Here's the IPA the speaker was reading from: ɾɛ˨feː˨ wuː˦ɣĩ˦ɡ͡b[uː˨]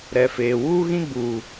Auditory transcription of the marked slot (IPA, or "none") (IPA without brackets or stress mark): uː˨